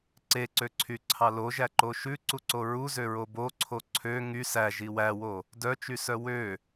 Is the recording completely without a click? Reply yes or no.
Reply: no